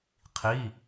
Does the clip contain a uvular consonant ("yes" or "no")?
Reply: yes